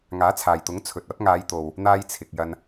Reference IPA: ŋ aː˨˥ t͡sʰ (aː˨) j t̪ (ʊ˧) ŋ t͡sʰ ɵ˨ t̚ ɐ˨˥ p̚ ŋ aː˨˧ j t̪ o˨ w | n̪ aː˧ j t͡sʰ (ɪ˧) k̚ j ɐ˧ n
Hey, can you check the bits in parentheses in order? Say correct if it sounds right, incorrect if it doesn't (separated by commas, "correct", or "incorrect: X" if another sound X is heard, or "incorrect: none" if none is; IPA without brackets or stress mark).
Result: correct, incorrect: ʊ˨˥, incorrect: ɪ˨